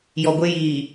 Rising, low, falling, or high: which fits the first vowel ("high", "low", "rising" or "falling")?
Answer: low